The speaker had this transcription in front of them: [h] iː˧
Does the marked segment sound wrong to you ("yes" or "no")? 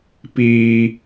yes